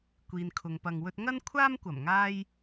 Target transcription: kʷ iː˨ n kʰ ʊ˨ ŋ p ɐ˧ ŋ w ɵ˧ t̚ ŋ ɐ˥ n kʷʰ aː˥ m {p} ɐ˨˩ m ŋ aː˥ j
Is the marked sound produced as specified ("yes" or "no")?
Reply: no